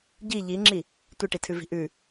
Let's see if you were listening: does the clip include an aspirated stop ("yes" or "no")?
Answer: yes